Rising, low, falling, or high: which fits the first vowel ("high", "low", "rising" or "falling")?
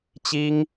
high